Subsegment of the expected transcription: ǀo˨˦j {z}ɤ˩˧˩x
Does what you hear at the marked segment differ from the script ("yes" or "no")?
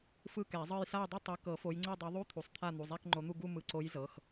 no